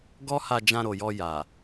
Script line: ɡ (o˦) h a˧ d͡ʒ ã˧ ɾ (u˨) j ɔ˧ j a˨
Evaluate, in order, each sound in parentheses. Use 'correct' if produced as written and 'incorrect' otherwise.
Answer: incorrect, incorrect

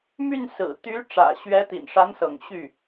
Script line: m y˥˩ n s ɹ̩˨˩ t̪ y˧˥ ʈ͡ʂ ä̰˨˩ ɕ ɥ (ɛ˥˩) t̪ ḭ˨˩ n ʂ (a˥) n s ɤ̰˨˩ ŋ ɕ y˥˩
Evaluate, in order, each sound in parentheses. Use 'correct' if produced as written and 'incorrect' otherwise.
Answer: incorrect, incorrect

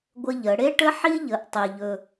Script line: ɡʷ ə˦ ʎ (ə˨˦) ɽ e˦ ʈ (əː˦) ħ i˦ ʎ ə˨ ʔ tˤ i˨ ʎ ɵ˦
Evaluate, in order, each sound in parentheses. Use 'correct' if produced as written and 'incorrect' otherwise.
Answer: correct, incorrect

